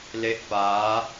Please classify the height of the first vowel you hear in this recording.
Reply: mid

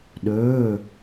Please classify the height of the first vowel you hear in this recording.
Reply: mid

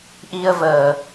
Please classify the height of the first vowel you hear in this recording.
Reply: high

